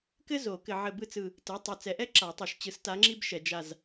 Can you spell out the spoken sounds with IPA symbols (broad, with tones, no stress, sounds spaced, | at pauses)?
k ɘ˥ z o˨˩˦ k ɘ˨ ʕ ɘ˦˨ b ɯ˥ t͡s ɯ˦˨ | t ɘ˩˥ tˤ œ˨ t͡s ɛ˨ ʔ ɛ˥ ǁ a˨˩˦ tˤ œ˨ ʃ t͡ɕ ɯ˨˩˦ s t a˧˥ ŋ͡ǁ i˥ b ʃ ɛ˨ d͡ʒ a˦˨ z